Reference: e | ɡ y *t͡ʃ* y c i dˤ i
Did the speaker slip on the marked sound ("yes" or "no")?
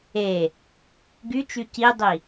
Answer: no